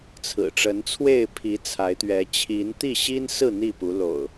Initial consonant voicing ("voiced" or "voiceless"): voiceless